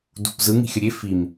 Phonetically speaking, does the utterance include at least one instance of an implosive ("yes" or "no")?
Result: no